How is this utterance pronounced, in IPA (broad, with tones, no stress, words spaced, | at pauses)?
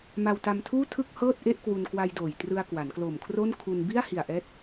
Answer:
ma˧wta˧mtʰuː˥˩tʰɯ˥˩k̚ hɤː˥˩t̚ ʔe˥˩ʔkwu˧nkwa˧jdoː˨˩j trɯ˧a̯kwa˩˦nklo˨˩mkʰro˥˩n kʰu˧n bi˥˩a̯hi˨˩a̯ʔɛː˦˥t̚